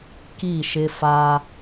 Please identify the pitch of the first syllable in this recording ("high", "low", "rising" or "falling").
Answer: falling